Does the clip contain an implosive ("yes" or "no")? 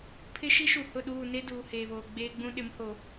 yes